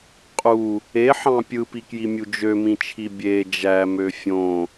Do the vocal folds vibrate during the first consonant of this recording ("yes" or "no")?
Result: no